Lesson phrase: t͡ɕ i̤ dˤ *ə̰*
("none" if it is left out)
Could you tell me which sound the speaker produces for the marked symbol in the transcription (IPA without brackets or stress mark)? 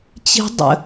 ə̰